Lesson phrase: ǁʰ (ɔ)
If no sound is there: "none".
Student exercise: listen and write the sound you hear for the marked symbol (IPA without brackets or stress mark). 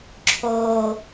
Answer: o